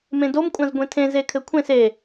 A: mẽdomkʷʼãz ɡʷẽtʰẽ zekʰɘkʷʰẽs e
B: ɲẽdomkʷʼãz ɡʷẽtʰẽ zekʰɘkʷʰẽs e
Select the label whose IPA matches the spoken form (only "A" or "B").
A